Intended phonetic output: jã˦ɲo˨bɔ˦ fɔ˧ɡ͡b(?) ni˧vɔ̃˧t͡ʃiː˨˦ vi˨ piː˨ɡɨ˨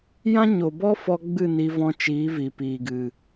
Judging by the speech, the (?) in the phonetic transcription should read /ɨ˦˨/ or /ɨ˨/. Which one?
ɨ˦˨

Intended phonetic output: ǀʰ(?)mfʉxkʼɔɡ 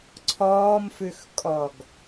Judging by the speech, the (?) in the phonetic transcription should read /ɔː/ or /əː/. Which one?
ɔː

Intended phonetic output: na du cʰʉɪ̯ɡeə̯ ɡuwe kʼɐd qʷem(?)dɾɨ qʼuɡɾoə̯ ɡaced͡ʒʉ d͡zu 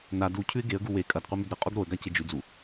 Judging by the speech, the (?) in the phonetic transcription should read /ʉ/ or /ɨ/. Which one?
ʉ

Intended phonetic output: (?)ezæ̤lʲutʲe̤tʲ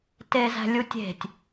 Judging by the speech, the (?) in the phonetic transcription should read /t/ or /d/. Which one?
t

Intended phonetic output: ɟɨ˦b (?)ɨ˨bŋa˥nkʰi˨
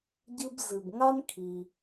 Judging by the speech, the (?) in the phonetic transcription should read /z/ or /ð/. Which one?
z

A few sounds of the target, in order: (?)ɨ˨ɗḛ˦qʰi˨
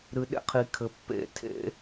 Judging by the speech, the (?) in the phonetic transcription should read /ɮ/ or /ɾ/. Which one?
ɾ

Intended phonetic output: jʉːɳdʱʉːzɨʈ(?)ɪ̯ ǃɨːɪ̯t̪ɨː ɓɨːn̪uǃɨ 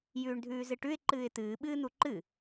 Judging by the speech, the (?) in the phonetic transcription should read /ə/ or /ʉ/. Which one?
ʉ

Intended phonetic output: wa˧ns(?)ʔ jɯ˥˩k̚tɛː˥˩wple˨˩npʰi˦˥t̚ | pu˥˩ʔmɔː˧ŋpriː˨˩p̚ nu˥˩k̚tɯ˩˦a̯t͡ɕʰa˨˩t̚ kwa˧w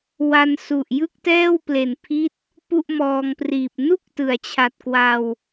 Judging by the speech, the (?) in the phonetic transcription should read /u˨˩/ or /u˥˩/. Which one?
u˨˩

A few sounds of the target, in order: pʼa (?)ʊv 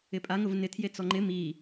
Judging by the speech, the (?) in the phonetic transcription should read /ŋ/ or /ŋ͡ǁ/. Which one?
ŋ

